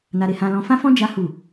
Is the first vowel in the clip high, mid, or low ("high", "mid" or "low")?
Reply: low